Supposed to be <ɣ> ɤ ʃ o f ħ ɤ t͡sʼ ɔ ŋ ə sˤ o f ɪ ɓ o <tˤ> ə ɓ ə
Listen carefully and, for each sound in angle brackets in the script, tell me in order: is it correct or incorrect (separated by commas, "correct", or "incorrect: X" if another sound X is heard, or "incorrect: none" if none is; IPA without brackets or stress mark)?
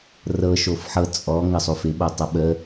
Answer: incorrect: r, correct